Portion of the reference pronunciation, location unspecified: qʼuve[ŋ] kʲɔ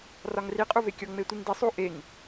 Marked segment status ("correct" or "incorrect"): incorrect